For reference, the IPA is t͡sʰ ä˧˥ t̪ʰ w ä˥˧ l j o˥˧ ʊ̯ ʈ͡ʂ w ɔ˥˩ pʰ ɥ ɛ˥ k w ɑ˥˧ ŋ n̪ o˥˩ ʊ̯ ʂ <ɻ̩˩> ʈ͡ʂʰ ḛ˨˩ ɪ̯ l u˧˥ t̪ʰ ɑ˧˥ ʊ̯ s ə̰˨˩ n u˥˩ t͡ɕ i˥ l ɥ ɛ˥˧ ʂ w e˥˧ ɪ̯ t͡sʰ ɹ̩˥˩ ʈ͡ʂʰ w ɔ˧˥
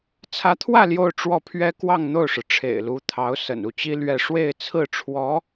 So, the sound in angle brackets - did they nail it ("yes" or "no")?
yes